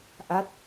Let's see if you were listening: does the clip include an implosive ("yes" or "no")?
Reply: no